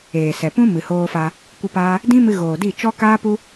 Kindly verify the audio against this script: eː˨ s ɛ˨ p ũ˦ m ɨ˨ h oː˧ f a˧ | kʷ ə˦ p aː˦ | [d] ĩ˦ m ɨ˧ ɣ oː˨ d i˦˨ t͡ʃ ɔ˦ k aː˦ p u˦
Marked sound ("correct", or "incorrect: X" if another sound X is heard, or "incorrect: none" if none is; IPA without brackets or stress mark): correct